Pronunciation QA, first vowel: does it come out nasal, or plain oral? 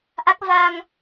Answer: oral